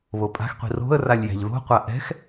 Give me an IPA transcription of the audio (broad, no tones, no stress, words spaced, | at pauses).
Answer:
βopʼa̤xqʷi̤ ro̤ə̯ ralʲjæ̤ʎðo̤qʷa ʔɛ̤x